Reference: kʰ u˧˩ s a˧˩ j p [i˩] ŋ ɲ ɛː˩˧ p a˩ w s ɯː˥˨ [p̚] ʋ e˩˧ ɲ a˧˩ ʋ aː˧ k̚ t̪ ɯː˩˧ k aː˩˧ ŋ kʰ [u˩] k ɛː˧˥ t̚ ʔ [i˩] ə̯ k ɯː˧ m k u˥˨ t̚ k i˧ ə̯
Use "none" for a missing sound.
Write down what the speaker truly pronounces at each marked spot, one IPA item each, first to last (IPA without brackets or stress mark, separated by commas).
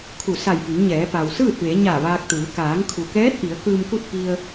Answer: i˩˧, t̚, u˩, i˩˧